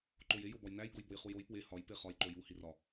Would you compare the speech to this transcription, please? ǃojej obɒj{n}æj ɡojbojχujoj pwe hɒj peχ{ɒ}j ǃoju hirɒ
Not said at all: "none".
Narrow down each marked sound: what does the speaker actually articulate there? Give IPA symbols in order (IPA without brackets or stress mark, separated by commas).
n, ɒ